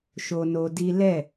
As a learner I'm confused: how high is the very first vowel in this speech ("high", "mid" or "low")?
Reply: mid